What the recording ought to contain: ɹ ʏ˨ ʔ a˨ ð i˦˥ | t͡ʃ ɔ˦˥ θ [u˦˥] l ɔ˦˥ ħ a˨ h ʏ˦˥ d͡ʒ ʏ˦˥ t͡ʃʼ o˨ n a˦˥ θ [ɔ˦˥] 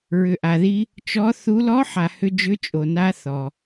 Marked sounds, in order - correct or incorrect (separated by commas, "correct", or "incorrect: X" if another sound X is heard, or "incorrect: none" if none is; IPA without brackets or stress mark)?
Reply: correct, incorrect: ɔ˨